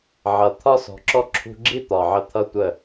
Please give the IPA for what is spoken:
ʕʌ˨ t̪ʰɒ˦sɔ̤˨ǁɔ˦ ǁʰṳ˧ɡ͡ǁi˦ t̪ɒ˨ʕə˧ t̪ʰʌ˦tʷə˦˨

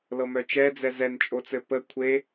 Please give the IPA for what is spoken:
lɤmœt͡ʃɛd͡zɛ zɛnt͡ʃʼot͡sɘ pə kʷʰe

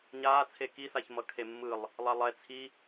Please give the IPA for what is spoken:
ɲaːt͡sʰe kisaçmʌ kʰemːɯlˠ | lˠalˠɛ t͡sʰi

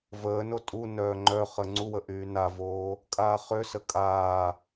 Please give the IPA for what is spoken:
vəːno tʼunœː ŋ͡ǃœχə ŋ͡ǀuwə ʔyːnavoː | kʼaːχøsə kʼaː

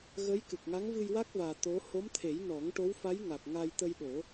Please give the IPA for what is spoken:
ɣə˧˥jkɨ˨˩k̚ŋa˧˥ŋ vɨ˧jwa˦˥k̚vaː˨˩ t̪o˧˥ ho˧˥mt̪ʰe˨˩˦j nɔ˨˩˦ŋʈo˧˥wfa˧˥jŋa˨˩k̚ ŋa˧j t̪ə˧jɗo˨˩˦

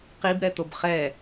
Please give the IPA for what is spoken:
qibɾɛt̪ob χɛ

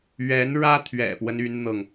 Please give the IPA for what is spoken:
ɥɛ˧˥nɻä˥t̪ʰɥɛ̰˨˩pwə˦n y˥nn̪ɤ˨ŋ

